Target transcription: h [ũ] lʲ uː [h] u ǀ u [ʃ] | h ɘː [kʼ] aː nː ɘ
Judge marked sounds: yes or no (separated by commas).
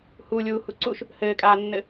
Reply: no, yes, yes, yes